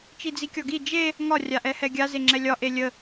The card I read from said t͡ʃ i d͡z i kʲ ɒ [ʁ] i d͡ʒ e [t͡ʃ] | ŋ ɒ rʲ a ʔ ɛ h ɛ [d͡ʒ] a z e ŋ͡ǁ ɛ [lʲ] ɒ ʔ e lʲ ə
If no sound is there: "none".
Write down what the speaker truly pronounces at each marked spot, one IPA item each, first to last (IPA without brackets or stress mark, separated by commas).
ɡ, none, ɡʲ, lʲ